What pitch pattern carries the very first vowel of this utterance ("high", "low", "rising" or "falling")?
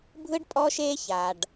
high